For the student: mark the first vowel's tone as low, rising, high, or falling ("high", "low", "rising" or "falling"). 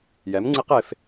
rising